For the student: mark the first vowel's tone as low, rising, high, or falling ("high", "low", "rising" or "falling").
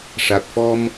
low